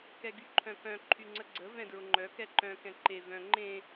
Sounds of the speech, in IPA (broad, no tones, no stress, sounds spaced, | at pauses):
k ɛ ɡ y ǃʰ œ̃ k œ̃ ǃʰ y ŋ͡ǀ ə ɡ͡ǀ ə v ɛ̃ d ɹ ʊ ŋ͡ǃ œ k ɛ ǃ œ̃ k ɛ̃ ǃ e v œ̃ ŋ͡ǃ ẽ